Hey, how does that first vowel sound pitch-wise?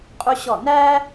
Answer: high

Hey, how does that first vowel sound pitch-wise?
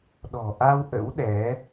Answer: low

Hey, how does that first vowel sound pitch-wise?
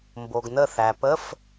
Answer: low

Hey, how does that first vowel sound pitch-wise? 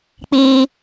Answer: high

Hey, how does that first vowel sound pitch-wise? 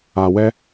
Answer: low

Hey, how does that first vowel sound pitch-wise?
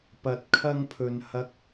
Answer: rising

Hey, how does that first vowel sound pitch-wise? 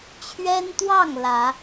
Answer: high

